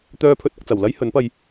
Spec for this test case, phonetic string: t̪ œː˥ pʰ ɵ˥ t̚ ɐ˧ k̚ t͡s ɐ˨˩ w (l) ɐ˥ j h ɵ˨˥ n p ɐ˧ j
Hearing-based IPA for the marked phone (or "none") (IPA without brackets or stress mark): l